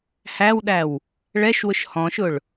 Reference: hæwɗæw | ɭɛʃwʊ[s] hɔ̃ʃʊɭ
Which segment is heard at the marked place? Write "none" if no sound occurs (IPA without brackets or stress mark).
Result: ʃ